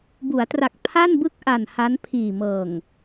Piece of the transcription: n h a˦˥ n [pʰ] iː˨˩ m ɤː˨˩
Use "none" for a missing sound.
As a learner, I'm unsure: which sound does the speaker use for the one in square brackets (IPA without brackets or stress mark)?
pʰ